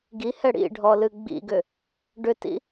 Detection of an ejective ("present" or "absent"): absent